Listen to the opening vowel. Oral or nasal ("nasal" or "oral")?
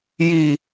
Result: oral